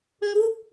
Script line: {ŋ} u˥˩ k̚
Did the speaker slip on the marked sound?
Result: no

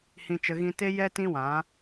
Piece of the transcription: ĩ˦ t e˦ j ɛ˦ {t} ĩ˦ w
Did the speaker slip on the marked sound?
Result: no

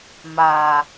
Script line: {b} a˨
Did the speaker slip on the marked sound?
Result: yes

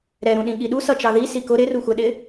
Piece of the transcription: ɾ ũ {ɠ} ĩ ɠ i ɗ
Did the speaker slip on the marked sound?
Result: yes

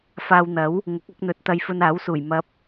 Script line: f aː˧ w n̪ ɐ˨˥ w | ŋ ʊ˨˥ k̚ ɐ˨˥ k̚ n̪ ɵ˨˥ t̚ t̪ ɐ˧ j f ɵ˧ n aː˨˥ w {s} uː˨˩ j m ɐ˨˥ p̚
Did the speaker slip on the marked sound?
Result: no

